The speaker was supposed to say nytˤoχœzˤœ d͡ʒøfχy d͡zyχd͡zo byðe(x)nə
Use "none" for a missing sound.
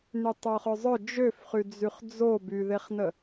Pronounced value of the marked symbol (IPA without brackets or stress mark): χ